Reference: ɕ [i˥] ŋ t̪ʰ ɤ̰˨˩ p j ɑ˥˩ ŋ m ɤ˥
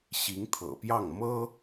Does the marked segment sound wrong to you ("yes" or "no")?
yes